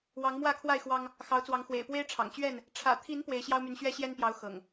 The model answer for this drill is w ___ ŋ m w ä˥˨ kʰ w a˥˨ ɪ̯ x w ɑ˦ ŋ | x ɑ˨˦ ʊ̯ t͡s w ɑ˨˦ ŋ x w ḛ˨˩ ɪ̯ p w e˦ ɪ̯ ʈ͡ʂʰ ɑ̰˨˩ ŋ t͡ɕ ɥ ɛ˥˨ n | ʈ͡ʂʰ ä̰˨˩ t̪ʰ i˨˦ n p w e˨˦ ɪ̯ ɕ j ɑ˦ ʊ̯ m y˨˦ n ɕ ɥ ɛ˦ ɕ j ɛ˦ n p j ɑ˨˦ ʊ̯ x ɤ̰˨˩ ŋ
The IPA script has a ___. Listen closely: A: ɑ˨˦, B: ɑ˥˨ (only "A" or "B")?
A